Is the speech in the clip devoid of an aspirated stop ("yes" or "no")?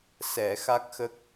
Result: yes